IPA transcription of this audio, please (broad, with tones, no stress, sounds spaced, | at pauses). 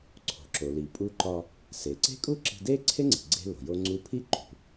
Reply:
ǀʰ o̤˩ ǁ o˩ l i˩ pʼ u˧ ǃ ɒ˧ | s e˩ ǀ e̤˥ kʼ u˥ ǁ i̤˧ d e˥ ǀʰ e˥ ŋ͡ǀ i̤˩ ɡ͡ǀ e̤˧ l o̤˩ j o˧ ŋ͡ǀ u˧ pʰ i˥ ǃ ṳ˩